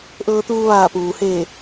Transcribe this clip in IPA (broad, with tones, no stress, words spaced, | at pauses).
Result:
ʔɤː˧t̪uː˧ ʋaː˧˩puː˩ heː˧˩